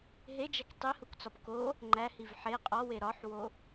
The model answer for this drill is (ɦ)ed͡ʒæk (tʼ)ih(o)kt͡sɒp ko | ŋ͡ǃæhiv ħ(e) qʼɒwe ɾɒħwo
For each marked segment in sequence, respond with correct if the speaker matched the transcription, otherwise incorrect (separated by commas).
correct, incorrect, incorrect, correct